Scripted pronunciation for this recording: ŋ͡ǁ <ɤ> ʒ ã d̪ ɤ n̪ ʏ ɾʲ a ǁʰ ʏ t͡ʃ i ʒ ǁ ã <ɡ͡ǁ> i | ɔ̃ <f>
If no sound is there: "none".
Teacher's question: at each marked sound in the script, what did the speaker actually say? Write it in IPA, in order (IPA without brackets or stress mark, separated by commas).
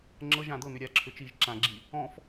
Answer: ɤ, ɡ͡ǁ, f